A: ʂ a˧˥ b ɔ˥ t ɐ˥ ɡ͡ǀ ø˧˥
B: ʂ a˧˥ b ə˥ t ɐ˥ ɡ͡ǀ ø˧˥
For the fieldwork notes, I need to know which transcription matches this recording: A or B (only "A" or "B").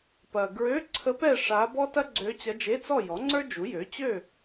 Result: A